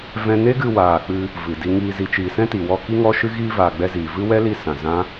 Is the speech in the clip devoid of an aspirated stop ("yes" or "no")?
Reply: yes